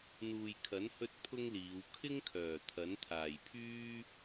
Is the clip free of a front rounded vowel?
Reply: no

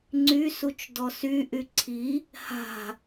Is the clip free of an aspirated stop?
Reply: no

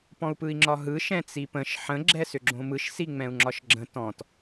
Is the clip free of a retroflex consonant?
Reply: yes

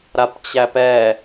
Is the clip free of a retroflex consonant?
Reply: yes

